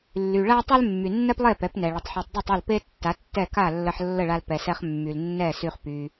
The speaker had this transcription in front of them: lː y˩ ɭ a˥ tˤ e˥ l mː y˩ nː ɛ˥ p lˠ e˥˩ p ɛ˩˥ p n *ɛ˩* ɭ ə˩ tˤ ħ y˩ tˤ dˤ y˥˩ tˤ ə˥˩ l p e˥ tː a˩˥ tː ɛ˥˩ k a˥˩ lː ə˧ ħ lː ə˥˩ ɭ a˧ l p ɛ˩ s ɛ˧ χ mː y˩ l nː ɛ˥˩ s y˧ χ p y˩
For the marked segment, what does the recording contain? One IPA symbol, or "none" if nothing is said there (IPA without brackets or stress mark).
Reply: ɛ˩